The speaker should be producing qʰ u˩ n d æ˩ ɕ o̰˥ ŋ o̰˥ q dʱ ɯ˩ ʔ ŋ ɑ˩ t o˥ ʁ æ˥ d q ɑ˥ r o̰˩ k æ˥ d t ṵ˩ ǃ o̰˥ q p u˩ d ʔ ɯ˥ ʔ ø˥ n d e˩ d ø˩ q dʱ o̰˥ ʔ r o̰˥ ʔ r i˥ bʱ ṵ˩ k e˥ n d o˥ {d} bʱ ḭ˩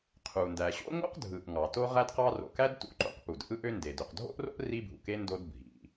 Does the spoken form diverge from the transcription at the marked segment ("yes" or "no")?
no